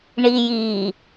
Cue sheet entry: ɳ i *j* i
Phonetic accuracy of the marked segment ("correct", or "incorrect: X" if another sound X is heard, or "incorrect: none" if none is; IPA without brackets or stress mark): correct